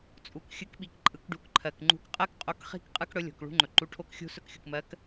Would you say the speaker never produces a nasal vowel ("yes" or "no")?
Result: yes